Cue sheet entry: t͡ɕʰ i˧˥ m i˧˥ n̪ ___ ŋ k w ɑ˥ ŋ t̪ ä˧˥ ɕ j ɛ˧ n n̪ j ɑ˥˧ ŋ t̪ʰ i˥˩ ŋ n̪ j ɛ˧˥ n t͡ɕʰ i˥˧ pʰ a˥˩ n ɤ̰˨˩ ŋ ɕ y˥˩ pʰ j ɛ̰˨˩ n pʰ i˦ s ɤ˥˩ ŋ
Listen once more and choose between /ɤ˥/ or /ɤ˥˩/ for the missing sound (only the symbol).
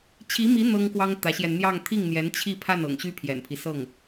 ɤ˥